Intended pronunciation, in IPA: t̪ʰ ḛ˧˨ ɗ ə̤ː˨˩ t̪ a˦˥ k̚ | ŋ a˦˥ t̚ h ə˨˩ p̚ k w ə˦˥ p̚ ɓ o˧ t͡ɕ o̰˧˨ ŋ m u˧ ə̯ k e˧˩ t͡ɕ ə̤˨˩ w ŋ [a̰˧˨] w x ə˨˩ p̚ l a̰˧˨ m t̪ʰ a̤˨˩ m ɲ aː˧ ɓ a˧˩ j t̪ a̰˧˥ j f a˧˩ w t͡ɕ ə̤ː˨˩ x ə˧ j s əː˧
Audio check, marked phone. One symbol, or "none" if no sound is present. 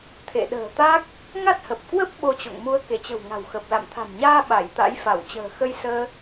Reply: a̤˨˩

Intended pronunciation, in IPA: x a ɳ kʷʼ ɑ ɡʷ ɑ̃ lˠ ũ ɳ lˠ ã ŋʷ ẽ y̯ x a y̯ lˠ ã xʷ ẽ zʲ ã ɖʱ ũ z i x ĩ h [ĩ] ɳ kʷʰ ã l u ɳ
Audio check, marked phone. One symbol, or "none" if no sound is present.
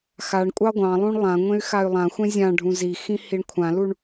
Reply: i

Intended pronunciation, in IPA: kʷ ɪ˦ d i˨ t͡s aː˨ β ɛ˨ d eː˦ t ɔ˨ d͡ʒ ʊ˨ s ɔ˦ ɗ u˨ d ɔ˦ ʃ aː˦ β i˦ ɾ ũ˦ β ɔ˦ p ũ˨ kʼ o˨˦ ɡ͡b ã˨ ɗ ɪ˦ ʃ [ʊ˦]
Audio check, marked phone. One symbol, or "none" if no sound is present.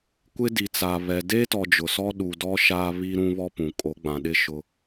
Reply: ʊ˦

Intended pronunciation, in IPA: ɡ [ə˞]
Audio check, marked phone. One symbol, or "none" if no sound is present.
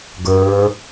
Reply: ə˞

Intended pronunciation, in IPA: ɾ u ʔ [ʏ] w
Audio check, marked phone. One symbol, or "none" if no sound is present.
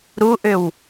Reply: ʏ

